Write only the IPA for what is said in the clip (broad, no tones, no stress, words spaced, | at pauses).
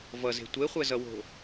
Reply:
vʌze̤ tʷeχʷɛzʌwo̤